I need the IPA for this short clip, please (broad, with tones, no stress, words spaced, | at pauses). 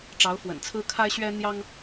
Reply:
ʈ͡ʂɑ˧˥ʊ̯fwə̰˨˩nt͡sʰɹ̩˥ kʰa˥ɪ̯ɕɥɛ˥n̪jɑ˥ŋ